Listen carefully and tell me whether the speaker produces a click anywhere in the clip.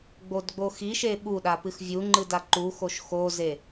yes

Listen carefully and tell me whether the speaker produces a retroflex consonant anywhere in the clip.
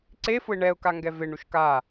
yes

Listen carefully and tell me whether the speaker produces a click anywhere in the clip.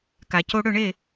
no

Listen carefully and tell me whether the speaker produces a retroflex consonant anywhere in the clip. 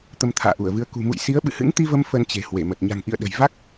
no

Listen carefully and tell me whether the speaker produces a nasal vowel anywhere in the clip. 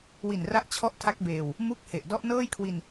no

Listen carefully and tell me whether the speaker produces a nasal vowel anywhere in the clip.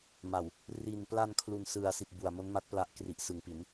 no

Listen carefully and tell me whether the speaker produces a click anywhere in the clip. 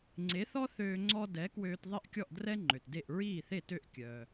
yes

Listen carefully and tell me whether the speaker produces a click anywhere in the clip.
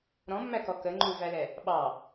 yes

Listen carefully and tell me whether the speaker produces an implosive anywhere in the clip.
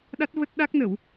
yes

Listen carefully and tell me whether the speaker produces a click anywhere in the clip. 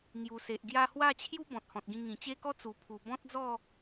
no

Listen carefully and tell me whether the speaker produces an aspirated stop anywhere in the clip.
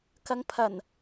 yes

